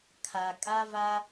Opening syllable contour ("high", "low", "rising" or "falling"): low